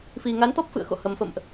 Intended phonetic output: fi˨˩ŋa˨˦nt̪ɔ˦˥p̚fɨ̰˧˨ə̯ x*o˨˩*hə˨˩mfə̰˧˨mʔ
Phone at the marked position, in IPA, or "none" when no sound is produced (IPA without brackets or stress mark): o̰˧˨